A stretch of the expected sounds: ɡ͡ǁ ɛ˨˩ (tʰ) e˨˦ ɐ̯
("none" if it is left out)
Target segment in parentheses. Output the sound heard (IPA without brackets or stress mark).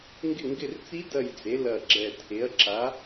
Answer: tʰ